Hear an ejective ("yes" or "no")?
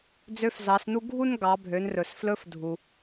no